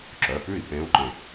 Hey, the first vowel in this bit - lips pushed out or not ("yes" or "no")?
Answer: yes